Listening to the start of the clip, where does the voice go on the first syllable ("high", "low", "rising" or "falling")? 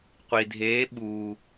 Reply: low